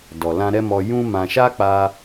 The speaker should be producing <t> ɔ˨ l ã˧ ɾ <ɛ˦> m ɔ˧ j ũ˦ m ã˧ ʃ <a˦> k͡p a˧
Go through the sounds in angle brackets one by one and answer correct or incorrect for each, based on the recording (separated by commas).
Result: incorrect, correct, correct